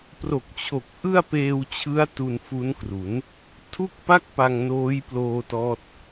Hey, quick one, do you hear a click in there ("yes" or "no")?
no